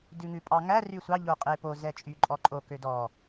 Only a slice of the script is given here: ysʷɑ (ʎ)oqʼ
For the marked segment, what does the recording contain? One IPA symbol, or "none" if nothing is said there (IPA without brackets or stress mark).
ʎ